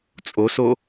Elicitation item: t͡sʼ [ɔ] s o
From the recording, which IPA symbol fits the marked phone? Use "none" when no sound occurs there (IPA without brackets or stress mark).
o